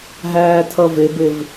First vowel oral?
yes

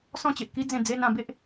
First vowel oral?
no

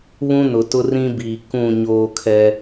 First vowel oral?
no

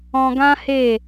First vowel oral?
no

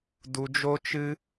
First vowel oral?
yes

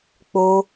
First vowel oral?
yes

